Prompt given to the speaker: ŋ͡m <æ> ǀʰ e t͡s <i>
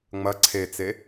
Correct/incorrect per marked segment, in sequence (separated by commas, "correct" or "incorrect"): incorrect, incorrect